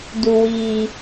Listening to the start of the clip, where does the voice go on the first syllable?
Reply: low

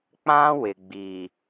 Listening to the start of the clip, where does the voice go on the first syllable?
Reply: high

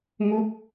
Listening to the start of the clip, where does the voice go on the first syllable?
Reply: falling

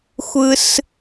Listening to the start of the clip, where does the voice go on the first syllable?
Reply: high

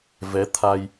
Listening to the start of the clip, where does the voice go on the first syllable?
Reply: rising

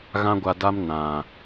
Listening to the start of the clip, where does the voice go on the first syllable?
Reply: high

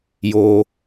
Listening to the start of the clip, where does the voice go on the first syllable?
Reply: low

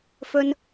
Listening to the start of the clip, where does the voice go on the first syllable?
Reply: high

